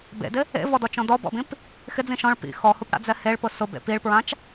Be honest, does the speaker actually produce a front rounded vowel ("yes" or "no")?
no